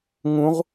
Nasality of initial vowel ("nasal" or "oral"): nasal